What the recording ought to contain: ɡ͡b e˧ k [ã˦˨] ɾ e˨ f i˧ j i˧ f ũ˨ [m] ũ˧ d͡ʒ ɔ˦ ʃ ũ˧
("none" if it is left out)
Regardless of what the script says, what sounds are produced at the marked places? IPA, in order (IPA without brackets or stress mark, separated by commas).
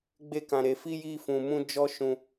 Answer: ã˨, m